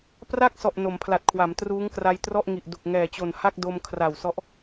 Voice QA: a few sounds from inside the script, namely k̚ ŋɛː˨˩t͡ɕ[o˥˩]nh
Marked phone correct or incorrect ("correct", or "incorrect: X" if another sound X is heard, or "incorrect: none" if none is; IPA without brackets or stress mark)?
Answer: incorrect: o˨˩